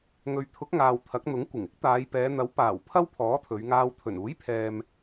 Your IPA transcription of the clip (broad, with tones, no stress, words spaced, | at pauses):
ŋɵ˨ɥt̪ʰʊ˨˥k̚ŋaː˨w t̪ʰɐ˨˥k̚n̪ʊ˨˥ŋ kʷɪ˨˩ŋɪ˥k̚ t̪aː˨˧jpɛː˨˧n̪ɐ˨˥w paː˨˩w pʰɐ˥wpʰɔː˨˥t̪ʰɵ˨˧ɥŋaː˧w t̪ʰɵ˨˩nuː˨˥jpʰɛː˨m